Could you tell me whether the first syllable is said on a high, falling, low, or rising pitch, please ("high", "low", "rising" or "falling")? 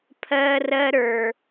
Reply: high